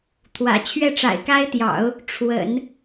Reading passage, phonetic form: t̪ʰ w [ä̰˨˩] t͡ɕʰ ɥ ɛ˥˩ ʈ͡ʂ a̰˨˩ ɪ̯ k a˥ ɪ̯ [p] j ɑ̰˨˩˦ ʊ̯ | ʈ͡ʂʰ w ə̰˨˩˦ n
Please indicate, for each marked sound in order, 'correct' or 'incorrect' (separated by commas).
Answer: correct, incorrect